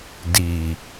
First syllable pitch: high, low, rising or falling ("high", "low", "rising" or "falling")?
low